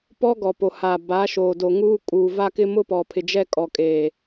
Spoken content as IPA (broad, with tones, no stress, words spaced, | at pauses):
pɔ˦ ɡɔ˨po˨ haː˨ ba˨˦ʃoː˨do˨ŋuː˦ kʼuː˨va˦kɪ˦ mʊ˦pɔ˨pʰɪ˨d͡ʒɛ˦ kʼɔ˨kʼeː˨